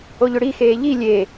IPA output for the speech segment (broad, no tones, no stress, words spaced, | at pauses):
oʎʏɽixeː ʎi lʲe